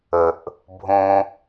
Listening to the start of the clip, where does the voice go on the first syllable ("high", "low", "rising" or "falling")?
low